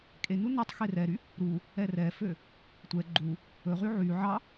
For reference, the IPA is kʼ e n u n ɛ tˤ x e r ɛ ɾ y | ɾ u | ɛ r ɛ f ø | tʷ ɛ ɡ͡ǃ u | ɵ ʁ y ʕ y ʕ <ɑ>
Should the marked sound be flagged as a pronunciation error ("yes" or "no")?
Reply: no